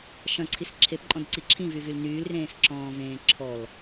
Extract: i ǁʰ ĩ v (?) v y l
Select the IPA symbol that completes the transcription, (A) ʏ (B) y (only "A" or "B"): B